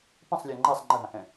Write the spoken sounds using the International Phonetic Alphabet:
pə̃sˤlʲə˞ ŋ͡ǃɛsˤ ŋ͡ǃəɦãhɛ̃

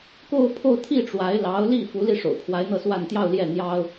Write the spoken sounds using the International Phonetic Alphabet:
ko˥˧ʊ̯pʰo˥˧ʊ̯ t̪ʰi˥˩ʈ͡ʂwa˧˥ɪ̯ lɑ˧˥ʊ̯li˥˩ fu˧˥li˥˩ ʂo̰˨˩ʊ̯pʰwa˧˥ɪ̯ n̪ɤ˥˧swa˥˧n t̪jɑ˥˧ʊ̯ljɛ˥˩ n̪jɑ˥ʊ̯

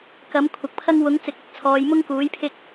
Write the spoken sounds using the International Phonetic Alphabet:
kɐ˨˥mkʷʰɐ˨k̚pʰɐ˥ŋ wʊ˨˥ŋt͡sɪ˨˥k̚ɪ˨˥k̚ t͡sʰɔː˨˧jmʊ˥ŋkuː˨˥jpʰɪ˥k̚

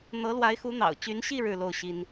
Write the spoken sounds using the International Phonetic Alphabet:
n̪ɤ˧˥lwa˧˥ɪ̯xu˧˥ n̪ɑ̰˨˩ʊ̯t͡ɕy˧˥nɕi˥˧ ɻɻ̩˥˧lo˥˩ʊ̯ɕi˥n

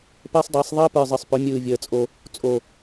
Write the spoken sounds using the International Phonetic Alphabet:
pəː˦sˤdˤəː˨˦sˤ ðˤəː˦pə˞˨zˤɯ˨sˤ pɵ˨˦mʲɯː˨vʲəː˨t͡sʼo˧ | t͡sʼo˨

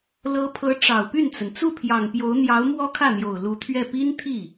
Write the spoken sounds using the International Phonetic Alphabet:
lɤ˧˥pʰɤ˧˥ ʈ͡ʂɑ˨˩ʊ̯py˥˩nt͡sə˩n t͡su˥˩pʰjɑ˨˩ŋpjo˧˥ʊ̯n̪jɑ˧˥ʊ̯ mwɔ˥kʰä˥˩n̪jo˨˩ʊ̯ lu˧˥t̪ʰɥɛ˥˩ pi˥n t̪ʰi˥˩

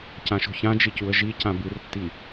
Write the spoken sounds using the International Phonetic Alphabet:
cãʃo̤çãd͡ʒi cuə̯ʒicã bɨrtːi

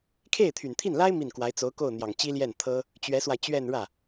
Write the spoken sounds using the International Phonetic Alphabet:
kʰe˥˩ɪ̯t̪ʰy˨˩nt̪ʰi˥˩nla˥ɪ̯ mi˥˩nkwa˧˥ɪ̯ t͡so˧˥ʊ̯ko˥˩ʊ̯n̪jɑ˨˩ŋ t͡ɕi˥ljɛ˥˩nt̪ʰɤ˥ | t͡ɕɥɛ˧˥swa˧ɪ̯t͡ɕɥɛ˥˧n ɻä˥˩

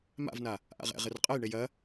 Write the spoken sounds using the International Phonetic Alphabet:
ma̰vna | ʔa̰ʁɛ̰ ʁɘrqʼɐjɳej ɐ

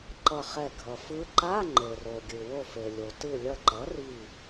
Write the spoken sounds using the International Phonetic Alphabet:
ǃʌ˧˩χɛ˧˩ ɡʱʌ˩fɯ˧˥ ǃa˧˥˧ ŋ͡ǃe˩ro˩ɡʲɯ˩ wo˧˩fe˩lʲo˩ tɯ˧˩lʲʌ˧˩ǃʌ˩˥ri˧˩

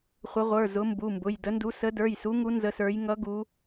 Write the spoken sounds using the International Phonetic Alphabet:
χʷə˨˦ʁʷə˞˩˧˩ zʊ˨˦mbu˩˧˩mbʊ˩˧˩j də˨˦ndu˨˦ sə˨˦də˞˩˧˩jsu˨˦ŋu˨˦ nzə˨˦sə˞˨˦j ŋʌ˨˦ ɡu˨˦

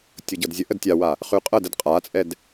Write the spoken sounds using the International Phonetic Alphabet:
tʲɤɟɤdzʲə ʔədtʲawa | χʉqʼɤdəd qʼat͡sʼɛd

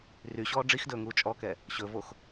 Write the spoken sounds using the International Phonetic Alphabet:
ryɕɔː ɖ͡ʐixdɵːŋuː t͡ʃʼɔkɛ | ɕɵvox

